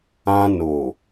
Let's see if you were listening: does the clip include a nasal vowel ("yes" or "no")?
yes